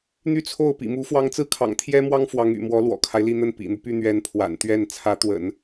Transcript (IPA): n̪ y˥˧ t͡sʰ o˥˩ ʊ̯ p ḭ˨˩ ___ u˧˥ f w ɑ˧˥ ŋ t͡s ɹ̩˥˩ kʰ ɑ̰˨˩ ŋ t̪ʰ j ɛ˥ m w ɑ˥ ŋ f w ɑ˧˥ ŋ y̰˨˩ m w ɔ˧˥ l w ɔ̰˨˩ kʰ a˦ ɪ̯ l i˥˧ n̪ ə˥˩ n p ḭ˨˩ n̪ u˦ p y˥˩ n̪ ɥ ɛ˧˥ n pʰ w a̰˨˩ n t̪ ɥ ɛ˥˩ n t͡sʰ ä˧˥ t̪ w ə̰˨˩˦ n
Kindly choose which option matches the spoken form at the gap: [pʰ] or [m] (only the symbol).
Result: m